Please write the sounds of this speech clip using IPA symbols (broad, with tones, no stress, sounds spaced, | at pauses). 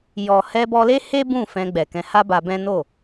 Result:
j ɔ˨ h ɛ˧ b ɔ˧ l e˦ h e˦ b ũ˦˨ f ɛ̃˧ ɡ͡b ɛ˨ k ɛ̃˧ h a˦ b a˧ b ɛ̃˦ n o˦˨